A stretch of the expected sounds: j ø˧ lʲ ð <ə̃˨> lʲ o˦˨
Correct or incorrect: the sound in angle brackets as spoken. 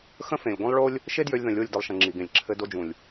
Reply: correct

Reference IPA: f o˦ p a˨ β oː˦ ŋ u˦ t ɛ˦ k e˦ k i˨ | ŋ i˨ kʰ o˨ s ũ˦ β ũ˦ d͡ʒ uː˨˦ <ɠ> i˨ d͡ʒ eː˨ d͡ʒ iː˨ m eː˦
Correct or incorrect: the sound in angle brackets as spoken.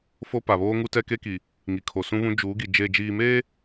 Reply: incorrect: ɡ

